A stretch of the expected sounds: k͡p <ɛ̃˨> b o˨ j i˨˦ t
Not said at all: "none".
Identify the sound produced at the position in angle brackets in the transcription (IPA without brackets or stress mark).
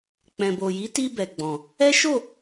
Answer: ɛ̃˨